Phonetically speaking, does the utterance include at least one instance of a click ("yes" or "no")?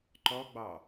yes